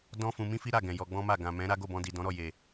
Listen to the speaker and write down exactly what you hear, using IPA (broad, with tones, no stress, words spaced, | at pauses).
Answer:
dɔ̃˦ fũ˧mĩ˦fi˦ ɾa˦˨ɡɛ̃˨ jɔ˧ɡ͡bɔ̃˦ma˦˨ ɡã˨mɛ̃˨˦ ɾa˦ɡo˦˨bɔ̃˧di˨ dɔ̃˨˦ɾɔ˦˨ je˨